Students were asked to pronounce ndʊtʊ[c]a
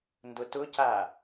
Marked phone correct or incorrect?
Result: correct